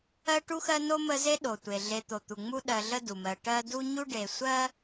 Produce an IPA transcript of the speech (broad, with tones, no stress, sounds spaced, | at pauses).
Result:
ɜ˦ ʈ u˦ x ɜ˦ n o˥ m ə˦ z e˥ ɗ o˩ tʷ e˩ ɮ e˨ t̪ o˩ t̪ u˩ ŋ͡m u˦ ɗ ɜ˨ ɮ ə˦ d u˩ m ɜ˨ ʈ ɜ˦ d u˥ ɲ u˥ ɖ e˨ sʷ ɜ˥